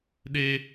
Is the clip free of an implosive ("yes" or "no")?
no